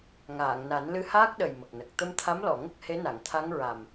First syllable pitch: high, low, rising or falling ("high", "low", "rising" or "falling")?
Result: low